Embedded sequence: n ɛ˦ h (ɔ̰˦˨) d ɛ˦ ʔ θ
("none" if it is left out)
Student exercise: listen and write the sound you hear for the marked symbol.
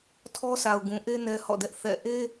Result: ɔ̰˦˨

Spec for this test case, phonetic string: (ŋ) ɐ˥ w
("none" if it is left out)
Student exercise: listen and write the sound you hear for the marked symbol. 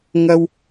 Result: ŋ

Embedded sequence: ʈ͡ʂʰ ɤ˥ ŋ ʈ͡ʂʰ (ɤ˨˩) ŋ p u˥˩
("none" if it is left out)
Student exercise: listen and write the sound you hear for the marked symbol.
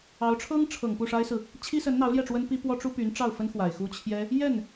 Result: ɤ˨˩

